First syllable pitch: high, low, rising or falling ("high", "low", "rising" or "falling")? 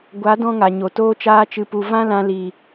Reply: rising